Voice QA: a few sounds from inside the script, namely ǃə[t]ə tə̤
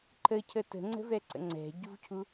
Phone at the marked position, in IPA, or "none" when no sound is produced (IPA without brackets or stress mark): cʰ